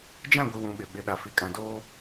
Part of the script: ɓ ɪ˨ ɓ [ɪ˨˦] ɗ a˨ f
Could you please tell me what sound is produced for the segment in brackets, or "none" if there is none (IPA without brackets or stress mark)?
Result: ɪ˨˦